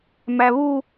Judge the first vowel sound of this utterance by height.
low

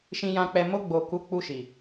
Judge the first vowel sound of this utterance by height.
high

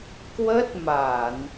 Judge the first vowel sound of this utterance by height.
mid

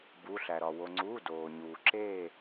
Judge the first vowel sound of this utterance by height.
high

